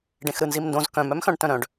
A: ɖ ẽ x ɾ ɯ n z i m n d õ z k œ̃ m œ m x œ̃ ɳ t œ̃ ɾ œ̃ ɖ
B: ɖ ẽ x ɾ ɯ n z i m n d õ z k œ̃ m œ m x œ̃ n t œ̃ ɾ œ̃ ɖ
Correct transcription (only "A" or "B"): A